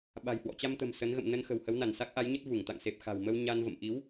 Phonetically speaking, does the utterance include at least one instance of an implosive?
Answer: yes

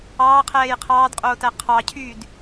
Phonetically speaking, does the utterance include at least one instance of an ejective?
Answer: yes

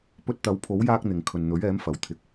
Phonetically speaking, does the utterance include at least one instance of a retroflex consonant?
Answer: no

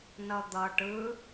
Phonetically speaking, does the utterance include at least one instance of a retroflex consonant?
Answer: yes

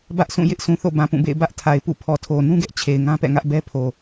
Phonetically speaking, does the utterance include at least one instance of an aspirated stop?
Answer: yes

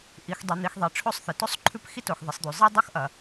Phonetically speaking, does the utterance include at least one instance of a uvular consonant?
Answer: no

